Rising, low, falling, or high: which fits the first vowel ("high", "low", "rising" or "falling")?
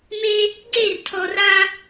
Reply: high